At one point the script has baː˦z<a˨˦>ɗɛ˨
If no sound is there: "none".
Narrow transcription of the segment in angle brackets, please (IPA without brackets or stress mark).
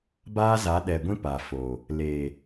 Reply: a˨˦